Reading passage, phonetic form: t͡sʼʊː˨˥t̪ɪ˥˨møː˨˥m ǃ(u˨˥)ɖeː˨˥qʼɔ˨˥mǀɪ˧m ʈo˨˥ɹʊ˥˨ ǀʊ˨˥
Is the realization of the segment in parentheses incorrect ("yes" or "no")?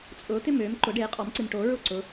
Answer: yes